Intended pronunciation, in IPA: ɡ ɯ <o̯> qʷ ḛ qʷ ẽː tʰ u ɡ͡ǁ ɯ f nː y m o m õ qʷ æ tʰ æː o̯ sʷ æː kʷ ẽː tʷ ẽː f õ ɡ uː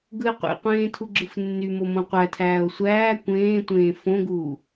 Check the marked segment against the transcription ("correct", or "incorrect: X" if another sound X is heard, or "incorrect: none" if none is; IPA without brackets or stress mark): incorrect: e̯